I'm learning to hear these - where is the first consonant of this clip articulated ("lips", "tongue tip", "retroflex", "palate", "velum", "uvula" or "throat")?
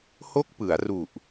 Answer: throat